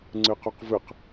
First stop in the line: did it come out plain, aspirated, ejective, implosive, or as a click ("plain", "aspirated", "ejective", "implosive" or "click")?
click